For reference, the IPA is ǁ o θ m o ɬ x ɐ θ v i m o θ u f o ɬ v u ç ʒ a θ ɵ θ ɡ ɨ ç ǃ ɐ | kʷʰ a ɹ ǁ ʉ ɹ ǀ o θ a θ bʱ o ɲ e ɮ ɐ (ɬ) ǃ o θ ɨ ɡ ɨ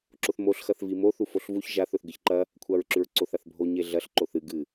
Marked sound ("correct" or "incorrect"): correct